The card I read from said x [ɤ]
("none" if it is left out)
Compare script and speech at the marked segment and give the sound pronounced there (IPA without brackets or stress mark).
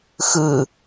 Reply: ɯ